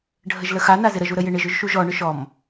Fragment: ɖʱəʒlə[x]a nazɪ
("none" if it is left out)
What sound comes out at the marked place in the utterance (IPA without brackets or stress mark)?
x